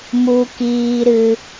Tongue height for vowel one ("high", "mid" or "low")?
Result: high